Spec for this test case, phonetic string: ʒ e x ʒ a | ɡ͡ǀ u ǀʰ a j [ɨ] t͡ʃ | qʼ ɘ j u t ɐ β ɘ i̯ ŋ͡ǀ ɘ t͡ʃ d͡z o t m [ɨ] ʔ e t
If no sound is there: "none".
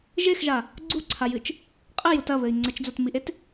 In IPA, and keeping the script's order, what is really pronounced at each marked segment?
ɨ, i

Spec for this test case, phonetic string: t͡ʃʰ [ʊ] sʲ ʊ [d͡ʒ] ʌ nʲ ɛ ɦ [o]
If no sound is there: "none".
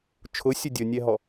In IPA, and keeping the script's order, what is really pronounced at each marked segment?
ʊ, dʲ, ɔ

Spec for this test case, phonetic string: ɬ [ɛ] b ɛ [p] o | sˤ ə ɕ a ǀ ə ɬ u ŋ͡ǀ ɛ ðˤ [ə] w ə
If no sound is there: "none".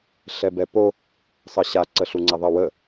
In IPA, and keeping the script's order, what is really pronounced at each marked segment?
ɛ, p, ə

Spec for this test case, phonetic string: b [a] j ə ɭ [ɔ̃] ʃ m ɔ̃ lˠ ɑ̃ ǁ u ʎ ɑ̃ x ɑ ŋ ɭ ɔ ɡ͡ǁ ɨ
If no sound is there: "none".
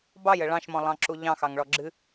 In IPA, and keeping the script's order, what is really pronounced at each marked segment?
ɑ, ɑ̃

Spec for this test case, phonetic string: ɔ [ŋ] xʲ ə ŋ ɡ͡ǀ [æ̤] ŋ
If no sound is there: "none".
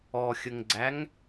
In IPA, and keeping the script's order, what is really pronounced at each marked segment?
none, æ

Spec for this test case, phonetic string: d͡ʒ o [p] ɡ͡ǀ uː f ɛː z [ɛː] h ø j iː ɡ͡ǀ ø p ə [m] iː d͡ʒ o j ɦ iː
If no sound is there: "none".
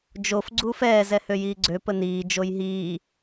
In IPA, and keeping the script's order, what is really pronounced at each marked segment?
f, ɛ, n

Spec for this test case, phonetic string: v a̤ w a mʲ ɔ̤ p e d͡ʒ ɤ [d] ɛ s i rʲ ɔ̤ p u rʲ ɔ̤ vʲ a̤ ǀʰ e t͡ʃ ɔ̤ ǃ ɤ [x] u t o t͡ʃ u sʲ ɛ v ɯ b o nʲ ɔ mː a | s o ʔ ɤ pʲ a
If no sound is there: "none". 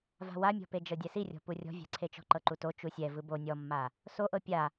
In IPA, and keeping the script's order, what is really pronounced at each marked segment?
dʲ, ǃ

